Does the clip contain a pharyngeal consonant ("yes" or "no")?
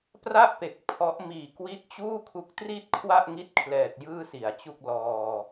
no